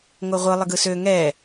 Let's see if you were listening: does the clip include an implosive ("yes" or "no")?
no